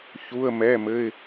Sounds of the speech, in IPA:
çu˧˥˧ə̯mɛ˧˥˧mɘ˧˥˧ɪ̯

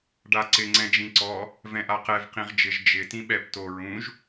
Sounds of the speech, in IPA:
ɖaǀɪ ŋ͡ǀɛ̃d͡ʒĩǀɔ | vɛ̃ʔaqɛv qĩʁd͡ʒɪʒ d͡ʒɪ tĩɓɛp to ɹũʒ

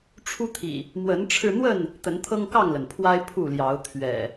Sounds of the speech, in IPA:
ʈ͡ʂʰu˦t̪ʰḭ˨˩ | mwə˨˦nʈ͡ʂʰɻ̩˧n̪wə˥˨n | t̪ə˨˦nt̪ʰɤ˦ŋkɑ˥˨ŋlə˩n pʰwa˦ɪ̯ pʰu˥˨ljɑ˨˦ʊ̯ t̪ʰɥɛ̰˨˩

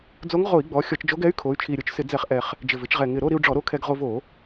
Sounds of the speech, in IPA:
d͡zo˧˥ŋʁo˧˩˧i̯ɡ͡bɔ˩˧ xʲɔ˧˩˧t͡ʃd͡ʒo˧˥ɡɛ˧˥y̯ kʰo˩˧y̯t͡ʃʰi˨˩ɾʲo˧t͡ʃsɪ˧˩˧ d͡zɛ˧˩˧χʔɛ˨˩χ | d͡ʒɪ˨˩vɪ˩˧t͡ʃʁɛ˨˩ ŋɪ˨˩ɾo˥˧ ɾi˧u̯ ɖ͡ʐɔ˧˩˧ɾo˧ kʰɛ˧ɡ ʁo˧vo˧˩˧

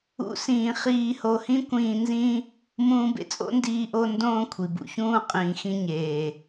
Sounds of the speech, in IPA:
ṵ˦sĩː˧ χiː˧ho˧hĩ˦ kʷĩː˧nzĩ˦ | mũː˧bḛ˨˦ t͡sʼo̰˦ndiː˧ ʔo˧ ndõː˧ kʷʰi˨bṵ˧ çũː˧ qʼĩː˨xĩ˧ ɲeː˨

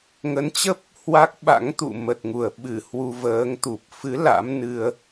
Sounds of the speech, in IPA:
ŋə˨˦nt͡ɕə˦˥p̚ | hwa˦˥k̚ ɓa̰˧˥ŋt̪ṵ˧˨ mə˨˩t̚ŋu˨˩ə̯ ɓɨ˧˩ hwu˧vəː˨˦ŋt̪u˨˩p̚ fɨ˨˦ la̰˧˥m nɨ˧ə̯

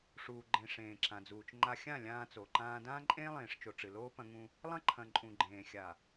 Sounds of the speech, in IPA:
ʂuː˨ɡ͡ǃẽ˨ ʂẽː˨ǁã˨d͡zuː˨t͡ʃŋ͡ǃa˦ xʲã˦˨ lʲãː˦t͡so˨ǃãː˦ dãː˦ǃʼẽː˦lˠẽː˨ʂt͡ʃo˨ ʈ͡ʂɨ˨loː˦ pɐ̃˦ŋũ˦ | lˠɐ̃˦ǃʰɐ̃˨ ǃʼũ˨ɡ͡ǃẽː˨xʲa˨

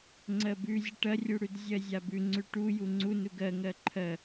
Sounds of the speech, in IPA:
ŋ͡ǀɜbʉzʲə ʈɐrʲuɽʉd zʲɜzʲabʉ ŋ͡ǀʉʈu juŋ͡ǀu nuɡɜŋɜ ǃʰɜ

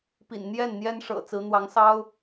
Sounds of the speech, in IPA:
pḭ˨˩n n̪jɛ˥˩n n̪jɛ˥nʂɤ̰˨˩ t͡sɹ̩˧˥n̪wɑ˧˥ŋsɑ˥ʊ̯

